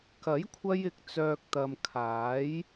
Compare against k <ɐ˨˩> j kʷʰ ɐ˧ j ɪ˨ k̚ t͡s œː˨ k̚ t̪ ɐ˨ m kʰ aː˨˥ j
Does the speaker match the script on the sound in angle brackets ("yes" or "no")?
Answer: no